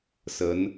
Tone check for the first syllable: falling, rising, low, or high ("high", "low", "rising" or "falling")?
rising